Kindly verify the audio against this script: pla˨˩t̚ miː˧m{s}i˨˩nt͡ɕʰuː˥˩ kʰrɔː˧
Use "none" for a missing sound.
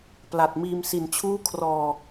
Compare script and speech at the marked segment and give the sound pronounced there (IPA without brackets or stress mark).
s